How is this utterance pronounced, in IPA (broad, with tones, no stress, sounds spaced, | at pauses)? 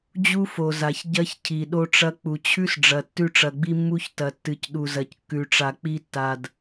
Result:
d͡ʑ u˦ f o˨ z a˨ ç ɟ ɐ˦ ç cʰ i˨ ɗ o˦ ʈ͡ʂ ɐ˦ k͡p u˨ t͡ɕʰ ʉ˦ s ɖ͡ʐ ɐ˨ tː ʉ˦ ʈ͡ʂ ɐ˨ ɡ͡b i˦ mː u˦ ç t ɐ˨ tː ɨ˨ c ɗ u˨ z ɐ˨ c kː ʉ˨ ʈ͡ʂ a˨ k͡p i˦ tː a˨ d